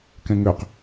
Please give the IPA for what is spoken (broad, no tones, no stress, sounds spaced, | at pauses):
k ɛ̃ ŋ ø q